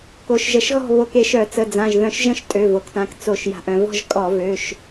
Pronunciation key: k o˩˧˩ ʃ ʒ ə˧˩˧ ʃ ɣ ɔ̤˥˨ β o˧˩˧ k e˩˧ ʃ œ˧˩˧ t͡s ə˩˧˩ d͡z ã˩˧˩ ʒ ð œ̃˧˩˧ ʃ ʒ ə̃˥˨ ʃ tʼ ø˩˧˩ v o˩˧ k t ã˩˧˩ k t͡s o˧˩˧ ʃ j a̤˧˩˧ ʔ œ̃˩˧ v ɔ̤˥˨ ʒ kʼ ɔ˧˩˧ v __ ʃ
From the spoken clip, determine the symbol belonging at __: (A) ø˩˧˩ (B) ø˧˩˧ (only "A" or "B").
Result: A